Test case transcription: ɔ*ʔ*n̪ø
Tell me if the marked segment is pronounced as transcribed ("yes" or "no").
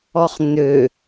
no